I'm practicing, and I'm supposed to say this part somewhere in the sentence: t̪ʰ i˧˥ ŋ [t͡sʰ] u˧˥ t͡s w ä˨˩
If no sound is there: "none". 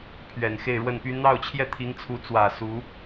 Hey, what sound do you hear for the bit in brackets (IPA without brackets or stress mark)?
t͡sʰ